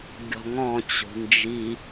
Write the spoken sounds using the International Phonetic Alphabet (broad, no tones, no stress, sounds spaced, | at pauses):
ɡʲ ɔ̤ ŋ ɔ̃ t͡ɕ o̤ n d͡ʒ i